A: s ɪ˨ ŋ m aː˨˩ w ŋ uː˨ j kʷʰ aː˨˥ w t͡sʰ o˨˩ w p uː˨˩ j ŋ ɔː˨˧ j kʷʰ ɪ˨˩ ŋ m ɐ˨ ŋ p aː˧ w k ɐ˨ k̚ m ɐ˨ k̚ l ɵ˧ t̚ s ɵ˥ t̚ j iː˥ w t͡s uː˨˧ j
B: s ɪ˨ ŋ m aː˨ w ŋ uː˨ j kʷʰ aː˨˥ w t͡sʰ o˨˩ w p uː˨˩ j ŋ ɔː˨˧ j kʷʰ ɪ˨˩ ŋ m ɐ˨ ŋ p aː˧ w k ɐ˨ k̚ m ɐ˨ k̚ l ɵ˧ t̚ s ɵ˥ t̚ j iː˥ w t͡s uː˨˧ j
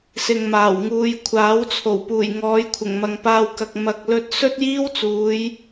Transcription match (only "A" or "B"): A